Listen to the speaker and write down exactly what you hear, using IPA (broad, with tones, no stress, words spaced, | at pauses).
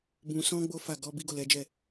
bũ˨sɔ̃˧ ɡ͡bo˦fa˦˨ ɡɔ˨˦ bi˦ɡo˦˨lɛ˨˦d͡ʒɛ˦˨